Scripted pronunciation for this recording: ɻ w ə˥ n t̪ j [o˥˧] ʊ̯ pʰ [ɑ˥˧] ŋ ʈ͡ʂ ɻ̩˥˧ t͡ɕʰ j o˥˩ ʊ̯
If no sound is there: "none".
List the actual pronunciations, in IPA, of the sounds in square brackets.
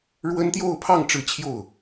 o˥˧, ɑ˥˧

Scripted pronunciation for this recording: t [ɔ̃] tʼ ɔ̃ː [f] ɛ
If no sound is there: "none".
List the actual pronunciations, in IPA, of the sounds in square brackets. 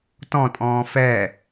ɔ̃, f

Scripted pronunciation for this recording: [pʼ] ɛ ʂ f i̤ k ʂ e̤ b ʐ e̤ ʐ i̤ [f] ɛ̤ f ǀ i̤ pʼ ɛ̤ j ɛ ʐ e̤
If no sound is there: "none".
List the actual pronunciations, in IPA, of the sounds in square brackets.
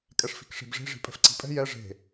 kʼ, pʼ

